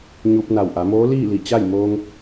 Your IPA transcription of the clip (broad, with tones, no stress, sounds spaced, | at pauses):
ɲ u˧ p̚ n a˧˩ w ʔ a˩˧ m oː˧˥ l iː˥˨ l i˧˩ t͡ɕ a˥˨ j m oː˧ ŋ